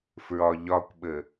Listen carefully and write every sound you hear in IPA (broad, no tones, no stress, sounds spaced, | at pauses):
f ɹ ɒ ʎ ɒ kʷ ɓ ə